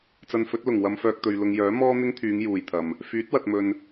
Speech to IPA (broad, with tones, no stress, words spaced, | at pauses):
t͡sɐ˧nfɵ˨˥t̚ lʊ˨˩ŋ wɐ˧mfœː˧k̚ t̪ɵ˨ɥlʊ˧ŋ jœː˨˥mɔː˥n̪ɪ˥ŋt̪ʰyː˨˧ŋ juː˨jt̪ʰɐ˨m | fyː˨˥t̚wɐ˨t̚mɵ˨n